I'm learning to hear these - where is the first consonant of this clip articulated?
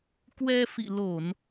velum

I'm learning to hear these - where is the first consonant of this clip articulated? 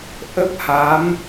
throat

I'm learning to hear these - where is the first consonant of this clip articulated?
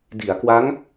tongue tip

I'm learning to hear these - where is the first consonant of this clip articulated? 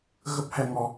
velum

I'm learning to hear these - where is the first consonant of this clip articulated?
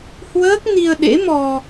throat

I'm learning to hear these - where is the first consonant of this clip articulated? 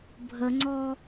lips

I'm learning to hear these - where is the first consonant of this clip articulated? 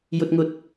palate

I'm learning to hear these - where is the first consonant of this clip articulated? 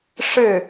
retroflex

